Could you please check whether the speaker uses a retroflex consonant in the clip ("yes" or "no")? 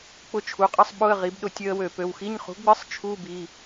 no